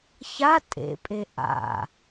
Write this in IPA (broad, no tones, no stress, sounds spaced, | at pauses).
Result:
ç a tʼ ḛ pʼ e ʔ a̰